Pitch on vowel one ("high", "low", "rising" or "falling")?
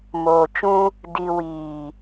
low